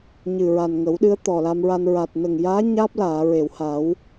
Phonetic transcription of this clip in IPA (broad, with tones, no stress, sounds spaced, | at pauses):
ɲ ɨ˨˩ ɹ a˨˩ n ŋ ə˨˩˦ w ɗ ɨ˧˥ ə̯ t̪ ɔ˨˩ l a˧ m ɹ a˧ n ɹ a˨˩ t̚ n ə˨˩ ŋ j aː˧˥ ɲ aː˦˥ p̚ l aː˨˩˨ ɹ e˨˩˨ w h a˨˩˦ w